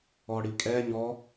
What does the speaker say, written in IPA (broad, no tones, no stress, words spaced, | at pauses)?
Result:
ɔɽikʼɛ ɲɔ